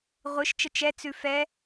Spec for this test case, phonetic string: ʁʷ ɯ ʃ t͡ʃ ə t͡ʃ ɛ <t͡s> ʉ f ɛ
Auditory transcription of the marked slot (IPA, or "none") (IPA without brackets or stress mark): t͡s